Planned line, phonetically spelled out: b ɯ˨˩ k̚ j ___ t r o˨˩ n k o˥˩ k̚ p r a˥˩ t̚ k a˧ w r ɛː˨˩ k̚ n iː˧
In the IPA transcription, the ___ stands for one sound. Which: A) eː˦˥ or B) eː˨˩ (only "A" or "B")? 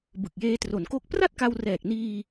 A